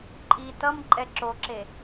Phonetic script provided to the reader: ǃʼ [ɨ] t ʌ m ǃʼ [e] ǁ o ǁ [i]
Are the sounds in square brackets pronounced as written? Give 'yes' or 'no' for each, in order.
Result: no, no, no

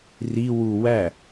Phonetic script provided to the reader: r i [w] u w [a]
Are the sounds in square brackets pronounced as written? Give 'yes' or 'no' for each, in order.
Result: yes, no

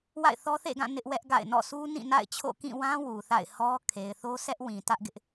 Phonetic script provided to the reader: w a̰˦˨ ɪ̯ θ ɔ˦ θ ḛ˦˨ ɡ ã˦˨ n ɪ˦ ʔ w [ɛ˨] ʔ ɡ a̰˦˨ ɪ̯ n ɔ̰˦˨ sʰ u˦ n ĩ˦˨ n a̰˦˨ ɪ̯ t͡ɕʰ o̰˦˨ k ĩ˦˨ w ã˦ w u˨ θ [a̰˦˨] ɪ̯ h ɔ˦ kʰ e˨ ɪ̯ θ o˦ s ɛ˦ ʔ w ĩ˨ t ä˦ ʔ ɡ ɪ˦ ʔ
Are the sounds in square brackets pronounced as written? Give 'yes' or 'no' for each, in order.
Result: no, yes

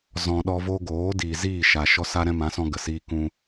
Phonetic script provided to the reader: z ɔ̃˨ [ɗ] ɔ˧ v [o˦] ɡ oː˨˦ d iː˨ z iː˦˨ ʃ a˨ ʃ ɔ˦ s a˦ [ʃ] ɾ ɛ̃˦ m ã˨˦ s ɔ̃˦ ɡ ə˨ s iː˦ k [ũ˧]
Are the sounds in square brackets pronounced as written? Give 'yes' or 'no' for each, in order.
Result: yes, yes, no, yes

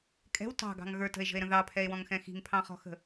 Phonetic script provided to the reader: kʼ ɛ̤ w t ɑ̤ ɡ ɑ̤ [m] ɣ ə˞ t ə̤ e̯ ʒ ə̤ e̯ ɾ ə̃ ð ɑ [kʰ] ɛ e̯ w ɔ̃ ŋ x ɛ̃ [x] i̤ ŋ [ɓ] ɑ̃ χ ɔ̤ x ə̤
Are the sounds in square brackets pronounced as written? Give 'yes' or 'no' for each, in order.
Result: no, no, yes, no

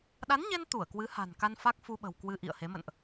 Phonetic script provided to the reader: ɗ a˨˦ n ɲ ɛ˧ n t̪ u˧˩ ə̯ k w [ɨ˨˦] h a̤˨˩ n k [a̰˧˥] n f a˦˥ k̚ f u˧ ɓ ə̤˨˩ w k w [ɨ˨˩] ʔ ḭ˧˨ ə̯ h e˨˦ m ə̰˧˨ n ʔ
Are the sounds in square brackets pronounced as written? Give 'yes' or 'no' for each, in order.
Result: yes, no, no

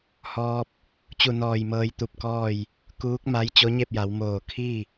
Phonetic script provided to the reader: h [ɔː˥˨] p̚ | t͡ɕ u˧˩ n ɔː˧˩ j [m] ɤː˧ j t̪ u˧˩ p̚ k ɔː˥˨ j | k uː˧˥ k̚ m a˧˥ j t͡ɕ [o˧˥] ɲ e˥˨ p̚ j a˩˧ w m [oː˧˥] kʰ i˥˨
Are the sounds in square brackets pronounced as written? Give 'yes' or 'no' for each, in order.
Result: no, yes, yes, no

